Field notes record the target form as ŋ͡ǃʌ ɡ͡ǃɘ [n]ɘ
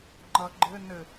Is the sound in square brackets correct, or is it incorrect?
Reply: correct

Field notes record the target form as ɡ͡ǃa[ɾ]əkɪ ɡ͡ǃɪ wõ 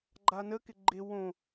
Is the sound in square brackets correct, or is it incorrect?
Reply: incorrect: n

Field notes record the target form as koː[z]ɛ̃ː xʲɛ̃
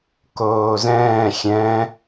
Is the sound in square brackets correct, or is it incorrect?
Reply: correct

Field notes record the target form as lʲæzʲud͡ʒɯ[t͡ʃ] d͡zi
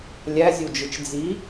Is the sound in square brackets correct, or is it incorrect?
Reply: correct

